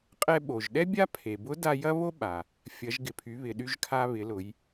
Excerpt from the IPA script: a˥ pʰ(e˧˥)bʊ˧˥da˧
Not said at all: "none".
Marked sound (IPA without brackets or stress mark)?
e˩